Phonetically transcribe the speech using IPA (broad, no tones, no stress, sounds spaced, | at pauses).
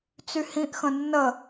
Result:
t͡s y h ĩ ʔ x ə̃ nː ə